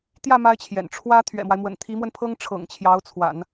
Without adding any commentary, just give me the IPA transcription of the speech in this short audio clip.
t̪ j ä˥˩ m a˥ ɪ̯ t͡ɕʰ j ɛ̰˨˩ n ʈ͡ʂʰ w ä˥ t̪ʰ ɥ ɛ̰˨˩ m w a˦ ɪ̯ m w ə̰˨˩ n t̪ʰ i˧˥ m w ə˧ n pʰ ɤ˥ ŋ ʈ͡ʂʰ ɤ̰˨˩ ŋ t͡ɕʰ j ɑ˧˥ ʊ̯ t͡sʰ w a̰˨˩˦ n

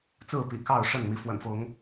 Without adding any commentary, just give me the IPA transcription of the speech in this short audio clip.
t͡s ɹ̩˥˨ p ḭ˨˩ k ɑ˥˨ ʊ̯ ʂ ə˥˨ n m i˨˦ f w ə̰˨˩ n f ʊ˨˦ ŋ

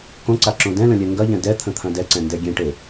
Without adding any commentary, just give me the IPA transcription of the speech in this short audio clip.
k õ ǀ a ǁ õ d ɛ̃ l ə̃ lʲ ɛ ŋ ɡ ɐ ʎ ɛ̃ d ɛ t̪ʰ ə̃ t̪ʰ ɐ̃ d ɛ ǀ ɛ̃ n d ɛ ɡʲ ẽ ʈ e

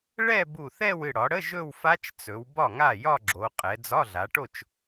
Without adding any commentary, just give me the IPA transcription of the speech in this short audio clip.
ɭ ɛ˥˧ b u˧˩ θ ɛ˥˧ w ɨ˧˩ ɽ ɒ˩˧ ɽ ə˧˥˧ ʒ ɵ˥˧ w f a˦˥ t͡ʃ t͡s ɵ˩˧ w b ɒ˥˩ ŋ a˥˩ j ɒ˥˧ ɡ͡ǁ o˩˧ qʼ ɛ˩˧ d͡z ɒ˧˥˧ ɮ a˩˧ ʈ o˥˩ t͡ʃ

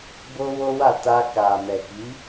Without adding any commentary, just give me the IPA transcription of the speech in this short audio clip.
b o˦ w o˦ w a˦˨ t a˧ k a˨ m ɛ˨ k i˨˦

